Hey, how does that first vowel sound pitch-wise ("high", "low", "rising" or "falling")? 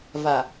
low